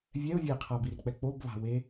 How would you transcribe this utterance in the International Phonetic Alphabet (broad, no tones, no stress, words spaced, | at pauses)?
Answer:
vʲɛʊ̯ vʲɛqʰabirk͡pɛ k͡pobβa̤we